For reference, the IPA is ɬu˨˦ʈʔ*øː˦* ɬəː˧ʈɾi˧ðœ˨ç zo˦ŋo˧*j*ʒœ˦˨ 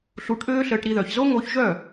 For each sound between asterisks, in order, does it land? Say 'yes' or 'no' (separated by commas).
yes, no